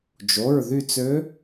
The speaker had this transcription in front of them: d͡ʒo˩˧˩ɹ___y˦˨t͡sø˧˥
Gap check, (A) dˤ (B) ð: B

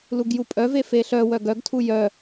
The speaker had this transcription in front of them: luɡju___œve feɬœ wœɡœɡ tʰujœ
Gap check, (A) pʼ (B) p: A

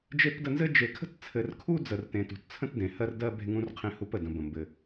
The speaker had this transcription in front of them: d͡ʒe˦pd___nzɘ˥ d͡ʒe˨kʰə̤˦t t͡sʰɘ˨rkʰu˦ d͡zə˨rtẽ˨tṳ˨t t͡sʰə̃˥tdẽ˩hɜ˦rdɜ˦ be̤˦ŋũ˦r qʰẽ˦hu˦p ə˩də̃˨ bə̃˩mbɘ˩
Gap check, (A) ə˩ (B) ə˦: B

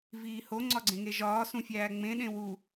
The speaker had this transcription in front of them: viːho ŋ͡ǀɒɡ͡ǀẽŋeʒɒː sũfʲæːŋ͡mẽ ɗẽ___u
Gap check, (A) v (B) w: B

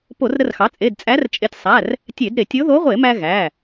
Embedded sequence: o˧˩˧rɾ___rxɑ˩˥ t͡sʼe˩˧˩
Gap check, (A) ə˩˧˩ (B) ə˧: B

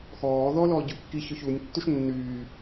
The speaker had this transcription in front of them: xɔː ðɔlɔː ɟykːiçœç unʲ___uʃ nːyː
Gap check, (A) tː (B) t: A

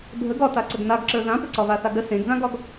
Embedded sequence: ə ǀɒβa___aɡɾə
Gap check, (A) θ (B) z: A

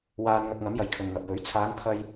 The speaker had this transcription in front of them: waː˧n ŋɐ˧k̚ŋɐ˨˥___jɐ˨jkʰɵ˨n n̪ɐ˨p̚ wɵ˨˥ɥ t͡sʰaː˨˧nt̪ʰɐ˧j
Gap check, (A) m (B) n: A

